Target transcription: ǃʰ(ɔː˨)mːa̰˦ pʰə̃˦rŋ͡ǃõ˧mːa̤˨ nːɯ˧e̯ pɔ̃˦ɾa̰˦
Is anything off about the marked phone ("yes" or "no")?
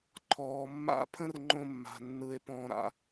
no